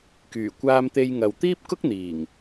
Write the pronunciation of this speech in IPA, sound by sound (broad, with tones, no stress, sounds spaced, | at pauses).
k yː˨˩ kʷ aː˧ m t̪ e˧ j ŋ ɐ˨ w t̪ iː˥ p̚ k ʊ˥ k̚ n̪ iː˨˩ ŋ